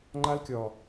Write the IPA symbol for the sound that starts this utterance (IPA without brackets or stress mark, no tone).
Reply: ŋ͡ǃ